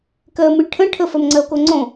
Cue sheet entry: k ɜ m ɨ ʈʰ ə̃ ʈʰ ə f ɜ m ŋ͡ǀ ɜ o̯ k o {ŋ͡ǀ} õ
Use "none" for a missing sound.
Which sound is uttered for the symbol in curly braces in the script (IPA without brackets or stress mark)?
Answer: ŋ͡ǀ